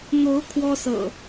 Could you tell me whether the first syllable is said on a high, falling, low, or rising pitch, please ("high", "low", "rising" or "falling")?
rising